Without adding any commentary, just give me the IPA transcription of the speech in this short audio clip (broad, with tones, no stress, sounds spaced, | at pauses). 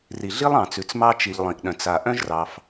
r i˩ ɮ i˥ lˠ ɑ̃˩ t͡s ʉ˩ t͡s m ɑ˥ t͡ʃ i˩ ʎ lˠ ĩ˩ ʔ ɗ œ̃˩ t͡s a˩ ʔ œ̃˥ ʒ r ɑ˩ f